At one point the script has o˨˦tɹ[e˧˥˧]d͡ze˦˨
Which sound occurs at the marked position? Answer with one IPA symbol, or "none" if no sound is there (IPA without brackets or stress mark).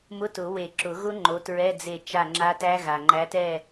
ɛ˧˥˧